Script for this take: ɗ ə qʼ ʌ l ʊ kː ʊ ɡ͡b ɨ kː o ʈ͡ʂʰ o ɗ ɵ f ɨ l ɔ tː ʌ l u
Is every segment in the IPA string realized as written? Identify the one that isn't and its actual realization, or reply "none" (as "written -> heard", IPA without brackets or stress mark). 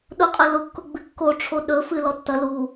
ə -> ʊ